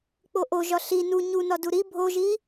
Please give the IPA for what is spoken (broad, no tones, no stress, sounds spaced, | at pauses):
k͡p o ʔ o ʒ ɒ ɬ i n u ɲ u n ɒ d u ɾ i bʱ o ʒ i